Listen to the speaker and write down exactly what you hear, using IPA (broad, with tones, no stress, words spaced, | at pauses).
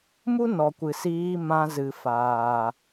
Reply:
mu˦nɔ˨kʷɨ˨ siː˧ mã˧zɨ˨faː˨